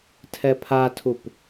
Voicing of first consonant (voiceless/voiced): voiceless